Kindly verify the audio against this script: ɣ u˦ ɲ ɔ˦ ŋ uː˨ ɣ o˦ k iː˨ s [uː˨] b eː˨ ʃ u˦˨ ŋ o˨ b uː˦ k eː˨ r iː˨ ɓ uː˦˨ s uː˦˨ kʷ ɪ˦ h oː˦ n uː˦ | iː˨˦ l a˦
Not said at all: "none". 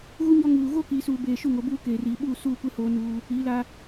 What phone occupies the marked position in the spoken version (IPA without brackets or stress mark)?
uː˨